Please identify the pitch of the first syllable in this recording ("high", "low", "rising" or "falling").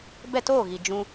falling